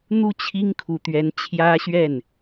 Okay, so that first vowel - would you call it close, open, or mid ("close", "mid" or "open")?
close